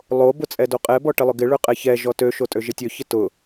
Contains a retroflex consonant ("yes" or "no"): yes